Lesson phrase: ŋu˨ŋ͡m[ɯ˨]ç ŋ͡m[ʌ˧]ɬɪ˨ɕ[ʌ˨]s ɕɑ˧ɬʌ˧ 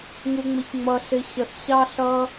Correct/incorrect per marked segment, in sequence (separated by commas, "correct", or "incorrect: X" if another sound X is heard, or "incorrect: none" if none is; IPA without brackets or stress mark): incorrect: ə˨, incorrect: ʌ˨, correct